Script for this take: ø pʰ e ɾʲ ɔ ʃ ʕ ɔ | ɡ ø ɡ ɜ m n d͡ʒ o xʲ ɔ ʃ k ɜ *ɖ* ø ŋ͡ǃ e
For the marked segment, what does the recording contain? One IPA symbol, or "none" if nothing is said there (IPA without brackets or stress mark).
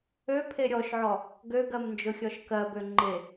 b